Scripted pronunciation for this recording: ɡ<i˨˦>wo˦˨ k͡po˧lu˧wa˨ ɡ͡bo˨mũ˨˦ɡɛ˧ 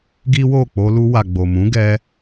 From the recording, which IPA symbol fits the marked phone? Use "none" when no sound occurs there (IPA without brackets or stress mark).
i˦